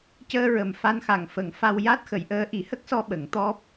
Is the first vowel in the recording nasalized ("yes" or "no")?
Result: no